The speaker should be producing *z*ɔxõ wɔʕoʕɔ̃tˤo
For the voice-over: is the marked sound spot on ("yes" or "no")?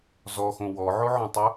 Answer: yes